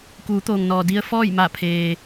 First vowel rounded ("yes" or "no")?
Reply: yes